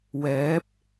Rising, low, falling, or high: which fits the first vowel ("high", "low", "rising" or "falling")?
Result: rising